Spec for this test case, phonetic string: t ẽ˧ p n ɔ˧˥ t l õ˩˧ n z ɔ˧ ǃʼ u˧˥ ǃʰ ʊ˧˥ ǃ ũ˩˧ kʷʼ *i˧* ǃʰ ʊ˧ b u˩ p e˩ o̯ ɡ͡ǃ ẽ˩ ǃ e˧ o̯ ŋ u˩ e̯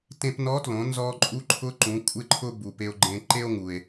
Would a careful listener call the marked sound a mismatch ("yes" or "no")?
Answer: yes